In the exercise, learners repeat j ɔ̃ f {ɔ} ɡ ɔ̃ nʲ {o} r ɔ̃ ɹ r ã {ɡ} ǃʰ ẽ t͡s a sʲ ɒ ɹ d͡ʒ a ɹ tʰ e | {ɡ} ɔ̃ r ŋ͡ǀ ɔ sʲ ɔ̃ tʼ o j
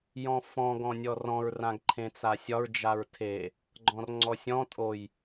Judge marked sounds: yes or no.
no, no, yes, no

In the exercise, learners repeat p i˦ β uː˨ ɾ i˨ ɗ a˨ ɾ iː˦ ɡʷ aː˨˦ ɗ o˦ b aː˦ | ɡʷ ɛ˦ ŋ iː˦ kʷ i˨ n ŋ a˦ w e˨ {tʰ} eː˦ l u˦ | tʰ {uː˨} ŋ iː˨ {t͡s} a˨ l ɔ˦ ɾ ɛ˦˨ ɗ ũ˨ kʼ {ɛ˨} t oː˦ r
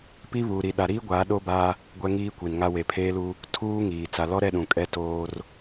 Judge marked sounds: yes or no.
no, no, yes, no

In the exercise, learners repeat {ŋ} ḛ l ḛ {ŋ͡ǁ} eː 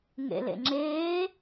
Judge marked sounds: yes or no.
yes, yes

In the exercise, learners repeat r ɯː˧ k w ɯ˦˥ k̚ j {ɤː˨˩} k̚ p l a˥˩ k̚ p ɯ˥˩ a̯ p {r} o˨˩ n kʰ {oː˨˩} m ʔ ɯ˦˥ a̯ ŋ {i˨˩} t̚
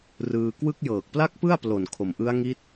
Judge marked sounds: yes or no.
yes, no, no, no

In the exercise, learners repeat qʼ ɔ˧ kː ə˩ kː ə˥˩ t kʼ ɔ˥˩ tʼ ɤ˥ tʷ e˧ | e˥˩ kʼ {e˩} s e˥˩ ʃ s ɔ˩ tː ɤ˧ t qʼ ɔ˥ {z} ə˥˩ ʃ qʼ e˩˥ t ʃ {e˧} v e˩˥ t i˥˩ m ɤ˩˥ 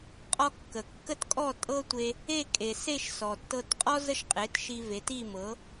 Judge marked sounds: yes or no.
yes, yes, no

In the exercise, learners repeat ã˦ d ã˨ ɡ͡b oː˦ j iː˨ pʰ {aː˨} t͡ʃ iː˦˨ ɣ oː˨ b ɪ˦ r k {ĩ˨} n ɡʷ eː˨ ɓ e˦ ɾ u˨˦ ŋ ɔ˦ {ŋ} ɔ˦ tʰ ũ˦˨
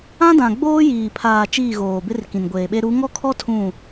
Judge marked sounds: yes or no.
yes, yes, no

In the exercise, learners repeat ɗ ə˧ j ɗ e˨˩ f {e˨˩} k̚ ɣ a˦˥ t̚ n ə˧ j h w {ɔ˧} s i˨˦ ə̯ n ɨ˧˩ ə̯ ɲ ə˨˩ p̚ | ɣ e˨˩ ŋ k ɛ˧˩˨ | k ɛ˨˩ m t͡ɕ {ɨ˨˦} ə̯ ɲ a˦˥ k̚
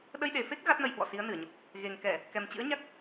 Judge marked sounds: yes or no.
no, no, no

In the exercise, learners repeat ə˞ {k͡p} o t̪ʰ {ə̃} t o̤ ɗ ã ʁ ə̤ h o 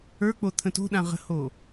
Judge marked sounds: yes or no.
yes, yes

